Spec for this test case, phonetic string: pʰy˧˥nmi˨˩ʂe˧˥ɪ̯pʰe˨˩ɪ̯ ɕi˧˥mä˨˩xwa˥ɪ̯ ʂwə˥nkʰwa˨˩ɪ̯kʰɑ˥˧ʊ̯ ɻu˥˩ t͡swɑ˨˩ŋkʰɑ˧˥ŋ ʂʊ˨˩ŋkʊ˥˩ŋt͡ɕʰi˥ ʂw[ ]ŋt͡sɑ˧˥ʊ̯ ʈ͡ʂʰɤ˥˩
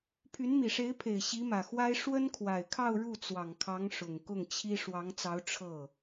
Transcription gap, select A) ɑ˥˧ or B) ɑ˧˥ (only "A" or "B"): B